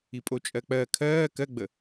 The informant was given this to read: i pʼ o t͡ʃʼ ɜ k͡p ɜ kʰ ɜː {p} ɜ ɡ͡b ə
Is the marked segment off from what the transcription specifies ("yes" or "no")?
yes